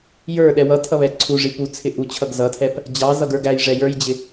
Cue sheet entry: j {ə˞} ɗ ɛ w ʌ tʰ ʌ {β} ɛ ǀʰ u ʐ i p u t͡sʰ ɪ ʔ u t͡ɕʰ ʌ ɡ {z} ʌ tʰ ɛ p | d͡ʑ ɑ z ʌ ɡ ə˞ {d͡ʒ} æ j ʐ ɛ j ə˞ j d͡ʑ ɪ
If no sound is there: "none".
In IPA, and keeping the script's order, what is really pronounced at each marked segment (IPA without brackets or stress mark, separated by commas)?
ə˞, β, z, ɡ